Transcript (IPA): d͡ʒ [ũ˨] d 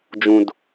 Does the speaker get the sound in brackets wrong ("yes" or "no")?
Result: no